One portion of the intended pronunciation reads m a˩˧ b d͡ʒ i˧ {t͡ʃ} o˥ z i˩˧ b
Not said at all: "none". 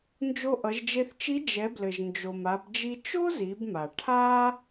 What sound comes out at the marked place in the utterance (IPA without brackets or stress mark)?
t͡ʃ